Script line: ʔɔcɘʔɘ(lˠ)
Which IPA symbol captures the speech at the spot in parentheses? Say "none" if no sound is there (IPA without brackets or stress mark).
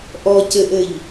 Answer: ʎ